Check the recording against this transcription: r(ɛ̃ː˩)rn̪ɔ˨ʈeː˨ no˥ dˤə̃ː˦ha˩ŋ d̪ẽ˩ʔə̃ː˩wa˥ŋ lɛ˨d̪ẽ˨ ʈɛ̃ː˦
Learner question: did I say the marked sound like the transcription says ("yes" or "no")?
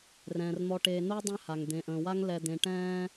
yes